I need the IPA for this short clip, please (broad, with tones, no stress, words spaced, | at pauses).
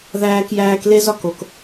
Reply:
ðæː˦kjæː˦kle˥zɒ˥k o˩k